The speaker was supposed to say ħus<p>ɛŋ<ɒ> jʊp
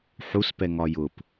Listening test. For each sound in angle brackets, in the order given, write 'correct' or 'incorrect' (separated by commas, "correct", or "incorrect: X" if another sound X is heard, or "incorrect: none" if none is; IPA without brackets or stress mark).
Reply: correct, correct